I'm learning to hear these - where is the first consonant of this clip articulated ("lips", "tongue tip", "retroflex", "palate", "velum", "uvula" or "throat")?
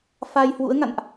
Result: lips